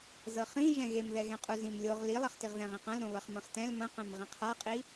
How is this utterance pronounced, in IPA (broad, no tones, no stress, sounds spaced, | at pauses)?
z ɤ χ ĩ ʒ ɛ̃ ɣ e m ð ɛ ɣ ɛ̃ qʼ u z ĩ m lʲ o ʁ l i lˠ ɐ χ t i ʁ ð ɛ̃ ʁ ĩ q ɐ̃ l ɾ õ β ɐ χ m ɐ̃ χ t ɛ̃ l m ɐ̃ q ɛ̃ m ʁ ĩ qʰ a qʼ i